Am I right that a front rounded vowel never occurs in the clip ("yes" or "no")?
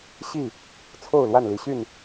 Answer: no